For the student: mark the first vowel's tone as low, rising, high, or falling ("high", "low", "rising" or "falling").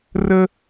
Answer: high